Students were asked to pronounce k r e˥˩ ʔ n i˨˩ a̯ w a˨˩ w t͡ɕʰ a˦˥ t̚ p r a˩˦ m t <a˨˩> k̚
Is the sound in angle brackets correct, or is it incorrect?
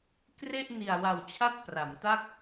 incorrect